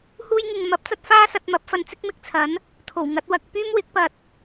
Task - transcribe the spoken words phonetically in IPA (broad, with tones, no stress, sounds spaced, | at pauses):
h uː˧ j ŋ ɪ˨ ŋ m ɐ˨˥ p̚ t͡s ɐ˥ t̚ f aː˥ s ɐ˧ t̚ m ɐ˨˥ p̚ f ɐ˨˧ n t͡s ɪ˥ k̚ m ɪ˧ k̚ t͡sʰ ɐ˨˥ n | t̪ʰ o˨˩ w ŋ ɐ˨˥ t̚ w ɐ˧ k̚ p yː˥ m w ɪ˨˥ k̚ p ɐ˧ t̚